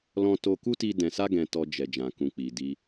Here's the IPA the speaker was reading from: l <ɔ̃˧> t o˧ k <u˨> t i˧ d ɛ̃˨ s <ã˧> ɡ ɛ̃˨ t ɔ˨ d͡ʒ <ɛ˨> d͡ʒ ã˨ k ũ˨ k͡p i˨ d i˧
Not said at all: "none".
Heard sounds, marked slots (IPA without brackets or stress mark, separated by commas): ɔ̃˧, u˦, a˧, ɛ˨